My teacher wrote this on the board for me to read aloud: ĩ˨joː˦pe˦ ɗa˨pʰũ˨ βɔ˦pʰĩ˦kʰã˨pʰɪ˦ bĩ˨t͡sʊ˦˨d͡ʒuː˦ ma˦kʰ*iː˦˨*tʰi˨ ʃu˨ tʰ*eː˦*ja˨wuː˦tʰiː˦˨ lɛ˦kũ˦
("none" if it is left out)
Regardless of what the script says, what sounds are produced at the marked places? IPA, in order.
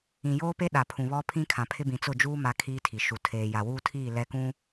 iː˦, eː˨

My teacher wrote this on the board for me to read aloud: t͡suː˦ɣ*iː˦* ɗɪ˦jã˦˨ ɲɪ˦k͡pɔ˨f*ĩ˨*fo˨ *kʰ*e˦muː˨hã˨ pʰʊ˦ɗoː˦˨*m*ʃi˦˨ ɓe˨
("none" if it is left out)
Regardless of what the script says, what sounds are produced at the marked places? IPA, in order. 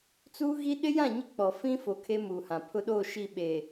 i˦, ĩ˦, kʰ, none

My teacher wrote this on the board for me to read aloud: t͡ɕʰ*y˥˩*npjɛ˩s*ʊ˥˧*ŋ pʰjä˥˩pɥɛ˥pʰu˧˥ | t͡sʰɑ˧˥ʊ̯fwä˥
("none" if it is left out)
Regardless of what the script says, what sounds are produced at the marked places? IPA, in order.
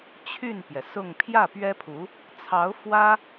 y˥˩, ʊ˥˧

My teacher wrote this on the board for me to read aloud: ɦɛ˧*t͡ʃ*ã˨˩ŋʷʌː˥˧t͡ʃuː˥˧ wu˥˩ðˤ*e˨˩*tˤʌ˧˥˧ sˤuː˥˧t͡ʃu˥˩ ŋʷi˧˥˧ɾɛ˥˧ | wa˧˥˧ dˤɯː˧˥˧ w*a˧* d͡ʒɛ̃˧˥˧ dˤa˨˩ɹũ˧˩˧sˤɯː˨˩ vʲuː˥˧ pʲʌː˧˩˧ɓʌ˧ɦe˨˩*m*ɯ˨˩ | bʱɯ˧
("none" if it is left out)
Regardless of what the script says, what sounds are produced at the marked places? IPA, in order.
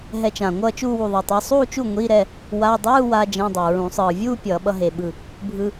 t͡ʃ, e˧, a˧, ɓ

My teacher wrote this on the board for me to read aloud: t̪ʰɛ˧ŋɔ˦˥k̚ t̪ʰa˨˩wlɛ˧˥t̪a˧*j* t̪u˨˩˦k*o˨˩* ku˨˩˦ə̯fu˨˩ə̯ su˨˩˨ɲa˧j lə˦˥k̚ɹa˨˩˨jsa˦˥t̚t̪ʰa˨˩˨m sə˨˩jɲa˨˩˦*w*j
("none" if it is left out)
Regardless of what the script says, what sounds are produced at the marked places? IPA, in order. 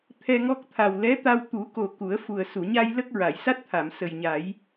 w, o˨˩, none

